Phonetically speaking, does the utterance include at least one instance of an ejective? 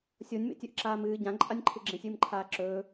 yes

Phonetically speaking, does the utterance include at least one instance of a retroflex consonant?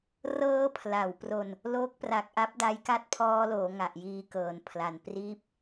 no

